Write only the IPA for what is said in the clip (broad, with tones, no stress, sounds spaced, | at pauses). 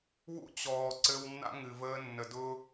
w ṵ˦ t͡ɕ ɔː˨ ǀ ɘ˧ w nː a̰˦ ŋ ɨ˨ v əː˧ nː ə˨ d ʊː˦